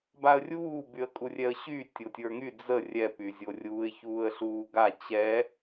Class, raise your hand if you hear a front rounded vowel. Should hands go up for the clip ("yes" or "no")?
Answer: yes